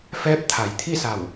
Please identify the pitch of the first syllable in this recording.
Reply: rising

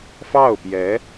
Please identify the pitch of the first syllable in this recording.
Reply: falling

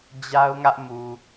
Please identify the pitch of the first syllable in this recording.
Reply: high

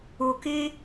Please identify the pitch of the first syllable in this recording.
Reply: low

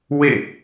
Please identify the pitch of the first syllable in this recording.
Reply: falling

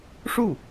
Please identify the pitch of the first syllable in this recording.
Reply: falling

